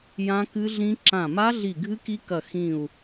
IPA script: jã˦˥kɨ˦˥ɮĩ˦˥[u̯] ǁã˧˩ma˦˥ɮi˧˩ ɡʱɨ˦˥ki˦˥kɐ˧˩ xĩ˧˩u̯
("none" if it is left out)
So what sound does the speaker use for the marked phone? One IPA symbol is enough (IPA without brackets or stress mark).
none